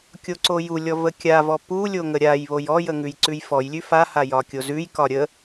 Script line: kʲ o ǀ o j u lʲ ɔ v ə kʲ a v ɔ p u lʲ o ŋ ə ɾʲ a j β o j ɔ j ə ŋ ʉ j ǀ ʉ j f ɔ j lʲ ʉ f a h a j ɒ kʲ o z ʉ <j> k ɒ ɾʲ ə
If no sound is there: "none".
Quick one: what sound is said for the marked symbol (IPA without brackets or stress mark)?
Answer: j